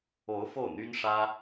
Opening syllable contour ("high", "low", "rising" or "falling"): rising